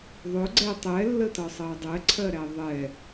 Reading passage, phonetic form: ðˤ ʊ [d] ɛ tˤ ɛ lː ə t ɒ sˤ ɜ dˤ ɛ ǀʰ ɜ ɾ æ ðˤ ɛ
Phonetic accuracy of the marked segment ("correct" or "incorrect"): incorrect